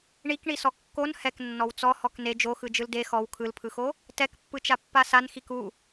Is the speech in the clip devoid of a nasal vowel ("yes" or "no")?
yes